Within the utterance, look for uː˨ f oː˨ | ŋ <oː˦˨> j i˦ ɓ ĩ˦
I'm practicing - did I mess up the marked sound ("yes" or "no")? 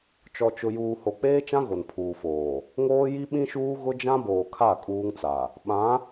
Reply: yes